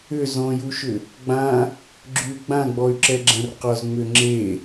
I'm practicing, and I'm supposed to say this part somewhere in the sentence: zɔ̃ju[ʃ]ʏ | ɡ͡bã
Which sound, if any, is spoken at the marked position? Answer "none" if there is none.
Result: ʃ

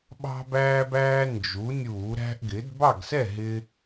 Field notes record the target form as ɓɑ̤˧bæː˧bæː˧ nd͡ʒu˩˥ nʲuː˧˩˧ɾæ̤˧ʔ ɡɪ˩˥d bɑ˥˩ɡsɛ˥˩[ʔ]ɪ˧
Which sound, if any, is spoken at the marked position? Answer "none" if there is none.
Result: ɦ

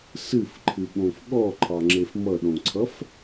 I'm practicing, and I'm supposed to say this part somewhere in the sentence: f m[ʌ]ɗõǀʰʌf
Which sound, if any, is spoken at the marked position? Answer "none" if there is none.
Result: ʌ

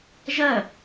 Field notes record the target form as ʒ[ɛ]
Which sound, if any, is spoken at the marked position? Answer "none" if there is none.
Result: ɜ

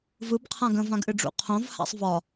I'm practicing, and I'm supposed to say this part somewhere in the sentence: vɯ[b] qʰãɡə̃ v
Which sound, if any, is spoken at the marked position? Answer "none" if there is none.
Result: b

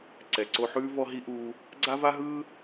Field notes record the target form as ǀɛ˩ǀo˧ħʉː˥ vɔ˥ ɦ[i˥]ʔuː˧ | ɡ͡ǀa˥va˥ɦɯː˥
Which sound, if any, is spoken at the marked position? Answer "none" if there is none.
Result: i˥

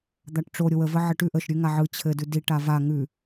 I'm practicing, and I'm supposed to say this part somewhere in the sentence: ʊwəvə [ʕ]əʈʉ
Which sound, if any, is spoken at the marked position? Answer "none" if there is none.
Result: ʕ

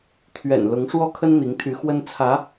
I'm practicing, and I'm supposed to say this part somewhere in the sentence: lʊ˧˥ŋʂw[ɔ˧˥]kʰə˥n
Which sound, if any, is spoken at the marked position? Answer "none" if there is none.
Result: ɔ˥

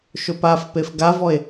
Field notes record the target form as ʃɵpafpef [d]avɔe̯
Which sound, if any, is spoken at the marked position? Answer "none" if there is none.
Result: ɡ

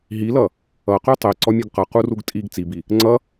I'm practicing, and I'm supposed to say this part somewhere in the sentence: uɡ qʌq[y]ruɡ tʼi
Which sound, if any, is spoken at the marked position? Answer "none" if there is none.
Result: u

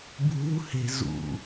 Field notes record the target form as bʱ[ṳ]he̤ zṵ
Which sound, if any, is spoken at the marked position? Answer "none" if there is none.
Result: ṳ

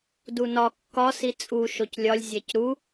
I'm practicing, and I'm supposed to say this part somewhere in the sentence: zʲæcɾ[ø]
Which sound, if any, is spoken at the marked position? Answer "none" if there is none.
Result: u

